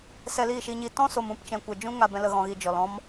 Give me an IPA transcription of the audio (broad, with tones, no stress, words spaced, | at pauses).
sɛ˧liː˦˨ʃi˧ɲi˧ tɔ̃˦so˨mũ˨pt͡ʃɛ̃˨ kʷɛ˨d͡ʒũ˦ŋa˧ bɛ̃˧lə˧ ɣɔ̃˧ɣi˧ d͡ʒɔ˨lɔ̃˦m